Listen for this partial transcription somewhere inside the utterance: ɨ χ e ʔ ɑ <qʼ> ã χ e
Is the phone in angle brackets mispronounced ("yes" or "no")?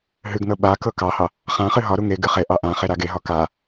yes